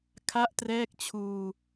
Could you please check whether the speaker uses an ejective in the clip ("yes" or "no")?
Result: no